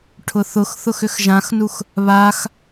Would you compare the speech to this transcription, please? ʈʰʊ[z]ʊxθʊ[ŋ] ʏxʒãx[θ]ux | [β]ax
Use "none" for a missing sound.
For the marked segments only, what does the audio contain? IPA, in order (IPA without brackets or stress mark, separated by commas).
θ, x, n, β